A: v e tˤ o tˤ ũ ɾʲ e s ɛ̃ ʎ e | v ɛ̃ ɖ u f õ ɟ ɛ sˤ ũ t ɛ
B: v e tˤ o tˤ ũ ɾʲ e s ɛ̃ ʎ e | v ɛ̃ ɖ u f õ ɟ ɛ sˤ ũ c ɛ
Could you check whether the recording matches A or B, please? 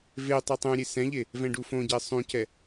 B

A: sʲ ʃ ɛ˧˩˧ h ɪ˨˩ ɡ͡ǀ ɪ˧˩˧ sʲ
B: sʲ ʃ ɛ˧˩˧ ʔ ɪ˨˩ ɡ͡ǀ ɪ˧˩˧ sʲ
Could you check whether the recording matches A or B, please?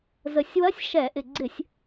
B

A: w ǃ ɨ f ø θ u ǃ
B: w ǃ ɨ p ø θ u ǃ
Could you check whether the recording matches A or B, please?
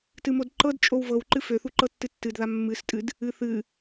A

